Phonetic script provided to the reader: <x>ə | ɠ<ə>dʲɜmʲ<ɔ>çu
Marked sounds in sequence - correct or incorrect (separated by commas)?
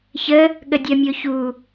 incorrect, correct, incorrect